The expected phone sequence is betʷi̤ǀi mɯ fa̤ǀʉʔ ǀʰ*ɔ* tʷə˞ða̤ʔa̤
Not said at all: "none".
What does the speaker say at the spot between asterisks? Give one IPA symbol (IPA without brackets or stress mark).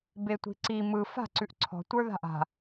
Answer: ɔ̤